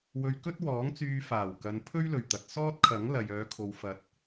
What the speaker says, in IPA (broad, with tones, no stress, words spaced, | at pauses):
wɵ˧ɥkɵ˥t̚wɔː˨˥ŋ t͡syː˧ faː˨˩wkɐ˨˧n pʰɵ˥ɥlɵ˨˩ɥt̪ɐ˨t̚ sɔː˥t̚kʰɐ˨˥ŋ lɐ˨jœː˨˧kʰo˨wfɐ˨˥t̚